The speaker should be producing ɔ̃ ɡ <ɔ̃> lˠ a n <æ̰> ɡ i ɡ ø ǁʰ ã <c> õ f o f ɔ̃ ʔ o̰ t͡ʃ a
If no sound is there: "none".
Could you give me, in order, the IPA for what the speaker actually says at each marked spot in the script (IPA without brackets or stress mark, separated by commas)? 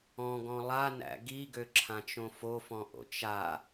ɔ̃, æ̰, t͡ʃ